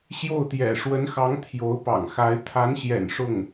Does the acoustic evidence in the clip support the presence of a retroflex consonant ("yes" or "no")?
yes